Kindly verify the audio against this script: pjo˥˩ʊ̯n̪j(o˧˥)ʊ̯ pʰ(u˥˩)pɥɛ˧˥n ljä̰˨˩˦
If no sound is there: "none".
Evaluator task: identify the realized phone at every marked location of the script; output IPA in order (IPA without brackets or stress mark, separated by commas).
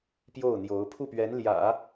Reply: o˧˥, u˥˩